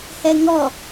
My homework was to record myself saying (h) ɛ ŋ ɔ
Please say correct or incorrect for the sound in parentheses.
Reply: correct